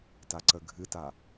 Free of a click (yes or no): no